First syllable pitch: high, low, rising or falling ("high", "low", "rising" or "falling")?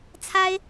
high